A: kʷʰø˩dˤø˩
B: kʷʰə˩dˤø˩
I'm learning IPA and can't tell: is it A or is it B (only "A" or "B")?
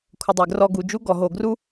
B